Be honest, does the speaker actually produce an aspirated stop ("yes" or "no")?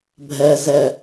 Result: no